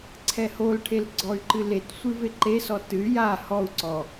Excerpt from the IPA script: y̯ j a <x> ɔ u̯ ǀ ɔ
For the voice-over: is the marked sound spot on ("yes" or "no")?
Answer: no